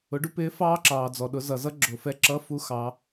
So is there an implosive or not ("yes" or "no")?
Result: yes